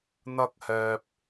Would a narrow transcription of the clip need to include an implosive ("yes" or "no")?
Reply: no